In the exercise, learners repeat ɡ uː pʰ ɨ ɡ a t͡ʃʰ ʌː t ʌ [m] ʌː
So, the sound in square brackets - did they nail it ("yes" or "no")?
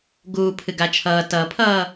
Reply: no